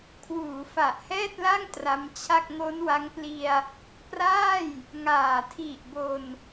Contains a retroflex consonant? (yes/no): no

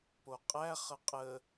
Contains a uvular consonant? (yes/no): yes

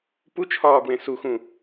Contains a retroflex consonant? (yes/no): no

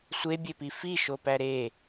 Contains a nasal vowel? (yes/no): no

